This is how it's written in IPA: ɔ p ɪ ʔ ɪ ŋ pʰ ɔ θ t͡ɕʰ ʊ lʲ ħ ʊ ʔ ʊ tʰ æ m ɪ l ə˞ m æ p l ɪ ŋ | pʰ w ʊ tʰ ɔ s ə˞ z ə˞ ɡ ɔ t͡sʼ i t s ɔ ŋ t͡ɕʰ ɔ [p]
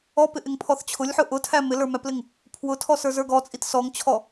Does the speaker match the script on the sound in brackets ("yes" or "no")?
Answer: no